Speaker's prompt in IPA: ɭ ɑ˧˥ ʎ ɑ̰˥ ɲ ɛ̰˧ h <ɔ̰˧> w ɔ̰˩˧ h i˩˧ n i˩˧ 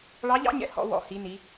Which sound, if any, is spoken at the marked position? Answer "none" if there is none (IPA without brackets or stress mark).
ɔ̰˧